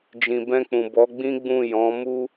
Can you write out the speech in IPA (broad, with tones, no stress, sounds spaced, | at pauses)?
d͡ʒ ĩ˨ b ɛ̃˧ k͡p ũ˨ b ɔ˨˦ ɡ͡b ĩ˦ ɡ͡b ũ˦˨ j ɔ̃˨˦ m u˦